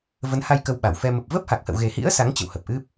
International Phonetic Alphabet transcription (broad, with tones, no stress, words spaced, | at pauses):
və˨˦nha˧j kə˧wɓa˧˩wfɛ˧ mə˨˩p̚və˦˥p̚ha˨˩k̚ hə̰˧˨wɣe˨˩hḭ˧˥ə̯ sa˨˦ŋt͡ɕə̰˧˨w hə˨˩p̚ʔɨ˦˥p̚